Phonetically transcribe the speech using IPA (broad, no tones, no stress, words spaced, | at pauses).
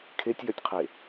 kʰetʲjœtʲqʰe